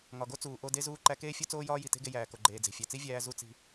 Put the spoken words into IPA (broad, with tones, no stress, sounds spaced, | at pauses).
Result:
ŋ ɒ˩ ɡ o˥ t͡s uː˩ ʔ o˧ d e˧ z uː˧ ǃ æ˧ k eː˥ fʲ o˥ t͡s oː˥ j ɒː˥ j i˩ t e̤˥ ɡ e˧ j æː˩ k o˩ ɡ͡ǃ eː˩ d͡z e̤˩ fʲ æ˩ t͡s i˥ vʲ æː˧ z u˧ t͡s i̤˧